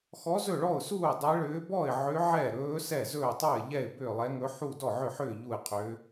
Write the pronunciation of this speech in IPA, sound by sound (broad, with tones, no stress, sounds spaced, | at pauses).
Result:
x ɔ˧˥ z ɵ˥˩ ɭ ɔ˥˩ ʊ̯ s uː˥˩ dˤ ɛ˧˥ ɭ ʏː˧˥ b ɔ˥˩ ɪ̯ ʕ ʏ˧˥ ʕ ɛ˥˩ ɾ ɵː˧˥ s ɛ˥˩ z ɵː˥˩ tˤ u˥˩ ɪ̯ ʎ ɛ˥˩ ɪ̯ b ʏː˥˩ lˠ ɛ˧˥ ŋ ɵ˧˥ ħ u˥˩ d ɔ˥˩ ʕ ʏ˥˩ ħ ʏː˥˩ ʎ u˥˩ ɪ̯ qʰ ʏː˧˥